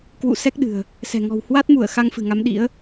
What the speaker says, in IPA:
kwṵ˧˨ sɛ˦˥k̚ɗɨ̤˨˩ə̯ | sɛ̤˨˩ŋɔ̤˨˩w hwa˦˥t̚mu˧˩ə̯ xa˧ŋfɨ̤˨˩ŋa˨˦m ɗḭ˧˥ə̯

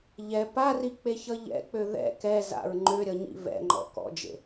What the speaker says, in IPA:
ʎɛ parik͡peçʌ ʎɛ̰k͡pø ðɛ̰ kɛza̰ɹ ŋ͡ǃøɾʲʌɲḭ vɛ̰ŋ͡ǃɔ̰ kɔ̰d͡ʒḛ

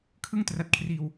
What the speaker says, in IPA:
kʰɯ˥˩ŋtra˨˩t̚kʰriː˨˩w

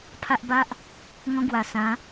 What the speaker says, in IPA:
pʰa˦ʔba˦ʔ | ŋɔ̃˦ɡwa˨˩ sã˨˦

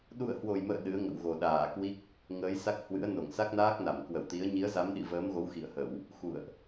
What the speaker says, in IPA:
ɗṵ˧˨ə̯hwo˨˩jmə̰ː˧˨ ɗɨ˨˦ə̯ŋə̰˧˨wɣo˨˩ ɗaː˧˩kwi˦˥k̚ | ŋəː˨˦jsa˦˥k̚hwɨ̰˧˥ə̯ no˧˩ŋsa˦˥k̚naː˦˥k̚na˧˩m kwə˧˩wt̪i˨˦ə̯ ɲi˨˦ə̯za˨˦mɗḭ˧˨ vəː˨˦mɣo˨˦w xḭ˧˨ə̯hə˧˩˨w | xṵ˧˨ə̯ʔ

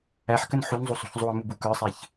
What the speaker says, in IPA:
æħkən ħunzˤusˤṳç zˤuɐ̯mubu kə˞sˤeç

